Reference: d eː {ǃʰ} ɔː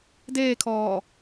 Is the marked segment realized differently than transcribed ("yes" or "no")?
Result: yes